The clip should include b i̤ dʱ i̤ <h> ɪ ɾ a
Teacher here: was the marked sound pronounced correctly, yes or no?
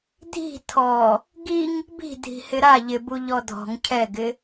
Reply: yes